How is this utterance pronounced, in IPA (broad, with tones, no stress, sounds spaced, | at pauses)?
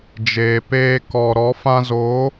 d͡ʒ eː˨ p eː˧ k ɔ˨ ɾ ɔ˨˦ f ã˧ z o˨˦